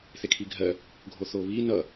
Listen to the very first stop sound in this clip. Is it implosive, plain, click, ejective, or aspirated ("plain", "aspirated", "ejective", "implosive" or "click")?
aspirated